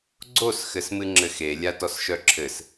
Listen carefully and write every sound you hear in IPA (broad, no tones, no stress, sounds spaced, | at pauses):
ɡ͡ǀ o s x ɘ s m ɨ ŋ͡ǁ ɘ x e lʲ a t ɔ s ʃ œ ǁʰ ɘ s